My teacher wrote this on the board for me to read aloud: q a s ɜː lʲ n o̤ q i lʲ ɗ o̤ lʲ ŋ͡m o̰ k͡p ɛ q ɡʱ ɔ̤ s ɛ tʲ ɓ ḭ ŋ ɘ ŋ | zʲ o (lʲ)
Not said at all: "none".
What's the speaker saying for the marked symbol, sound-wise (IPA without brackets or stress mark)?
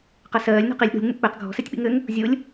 lʲ